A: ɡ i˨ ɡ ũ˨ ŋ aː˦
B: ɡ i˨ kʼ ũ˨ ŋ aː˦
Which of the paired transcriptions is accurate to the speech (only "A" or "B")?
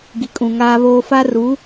B